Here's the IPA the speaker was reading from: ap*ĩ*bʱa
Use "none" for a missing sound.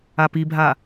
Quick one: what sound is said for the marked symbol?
i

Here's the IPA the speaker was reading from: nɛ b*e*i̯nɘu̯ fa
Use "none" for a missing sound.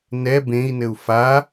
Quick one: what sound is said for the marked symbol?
ẽ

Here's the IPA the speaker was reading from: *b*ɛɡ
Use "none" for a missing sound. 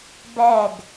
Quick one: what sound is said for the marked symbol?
b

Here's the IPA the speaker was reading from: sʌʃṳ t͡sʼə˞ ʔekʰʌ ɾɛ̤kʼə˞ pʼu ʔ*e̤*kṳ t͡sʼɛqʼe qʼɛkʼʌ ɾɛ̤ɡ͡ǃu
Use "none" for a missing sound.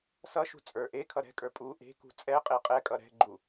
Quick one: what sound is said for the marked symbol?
e̤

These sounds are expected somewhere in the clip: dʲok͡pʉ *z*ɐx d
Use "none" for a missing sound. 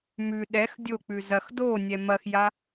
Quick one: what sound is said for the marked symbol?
z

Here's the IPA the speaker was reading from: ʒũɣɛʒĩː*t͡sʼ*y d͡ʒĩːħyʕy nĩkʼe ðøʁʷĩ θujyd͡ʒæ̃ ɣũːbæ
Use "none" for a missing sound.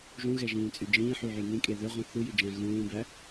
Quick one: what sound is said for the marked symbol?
t͡sʼ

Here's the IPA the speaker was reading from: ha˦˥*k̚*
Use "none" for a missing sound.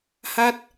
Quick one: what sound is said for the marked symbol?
t̚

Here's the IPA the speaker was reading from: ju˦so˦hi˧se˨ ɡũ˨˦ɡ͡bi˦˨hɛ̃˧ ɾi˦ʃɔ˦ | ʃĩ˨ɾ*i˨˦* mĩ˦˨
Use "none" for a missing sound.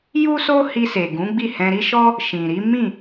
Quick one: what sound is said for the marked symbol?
i˨˦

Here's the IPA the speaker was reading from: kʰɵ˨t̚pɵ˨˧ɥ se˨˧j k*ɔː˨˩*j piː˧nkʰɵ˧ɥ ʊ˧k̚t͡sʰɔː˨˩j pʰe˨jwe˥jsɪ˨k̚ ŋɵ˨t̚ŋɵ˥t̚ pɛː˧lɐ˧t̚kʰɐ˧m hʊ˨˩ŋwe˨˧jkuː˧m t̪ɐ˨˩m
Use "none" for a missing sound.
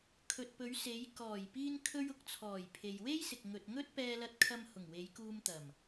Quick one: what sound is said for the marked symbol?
ɔː˨˩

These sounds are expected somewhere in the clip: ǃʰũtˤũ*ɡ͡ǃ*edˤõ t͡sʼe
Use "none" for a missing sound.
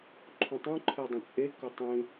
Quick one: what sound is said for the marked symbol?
ǃʰ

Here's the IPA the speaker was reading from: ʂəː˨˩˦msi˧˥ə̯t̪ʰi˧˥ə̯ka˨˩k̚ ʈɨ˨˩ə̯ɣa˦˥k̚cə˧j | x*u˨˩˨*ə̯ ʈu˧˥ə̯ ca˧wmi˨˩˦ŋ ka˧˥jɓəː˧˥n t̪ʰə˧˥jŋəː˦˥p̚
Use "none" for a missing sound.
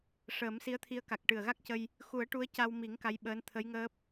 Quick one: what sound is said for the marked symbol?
u˨˩˦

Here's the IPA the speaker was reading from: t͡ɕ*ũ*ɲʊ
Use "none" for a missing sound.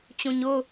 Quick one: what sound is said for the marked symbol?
ũ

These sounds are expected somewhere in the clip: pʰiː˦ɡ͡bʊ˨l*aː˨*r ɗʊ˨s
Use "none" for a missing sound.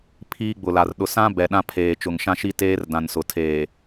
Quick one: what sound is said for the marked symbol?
a˨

